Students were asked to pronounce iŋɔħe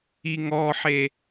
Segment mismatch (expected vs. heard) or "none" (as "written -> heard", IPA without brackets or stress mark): none